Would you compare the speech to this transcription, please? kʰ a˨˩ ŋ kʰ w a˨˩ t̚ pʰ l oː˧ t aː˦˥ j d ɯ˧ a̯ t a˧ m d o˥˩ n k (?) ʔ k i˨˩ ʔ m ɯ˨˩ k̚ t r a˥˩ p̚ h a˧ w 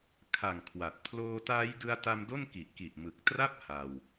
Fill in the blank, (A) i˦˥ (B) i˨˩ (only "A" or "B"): B